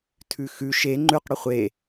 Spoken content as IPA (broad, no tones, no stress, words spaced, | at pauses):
tʰʉxʉ ʃe ŋ͡ǃʉq ɽɵχʷe